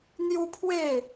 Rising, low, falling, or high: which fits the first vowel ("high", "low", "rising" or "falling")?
high